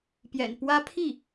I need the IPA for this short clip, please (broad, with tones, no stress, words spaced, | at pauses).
pjɛ̰˨˩npwä˥ pʰi˥˩